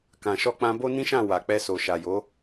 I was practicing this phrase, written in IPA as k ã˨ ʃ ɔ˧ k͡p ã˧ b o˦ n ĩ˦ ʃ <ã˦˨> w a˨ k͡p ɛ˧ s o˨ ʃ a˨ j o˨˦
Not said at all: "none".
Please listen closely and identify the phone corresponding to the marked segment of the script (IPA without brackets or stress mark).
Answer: ã˦˨